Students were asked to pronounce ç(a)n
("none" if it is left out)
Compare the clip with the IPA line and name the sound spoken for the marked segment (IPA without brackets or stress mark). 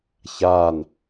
a